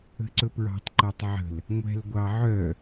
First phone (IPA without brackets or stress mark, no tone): ə̤